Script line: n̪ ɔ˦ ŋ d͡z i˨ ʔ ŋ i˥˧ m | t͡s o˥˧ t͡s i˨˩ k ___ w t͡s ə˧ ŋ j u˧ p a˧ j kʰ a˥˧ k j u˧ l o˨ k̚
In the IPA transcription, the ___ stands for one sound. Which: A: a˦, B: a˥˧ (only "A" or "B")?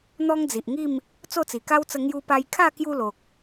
A